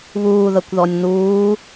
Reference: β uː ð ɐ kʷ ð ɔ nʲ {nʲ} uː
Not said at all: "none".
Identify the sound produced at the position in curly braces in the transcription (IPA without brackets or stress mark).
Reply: n̪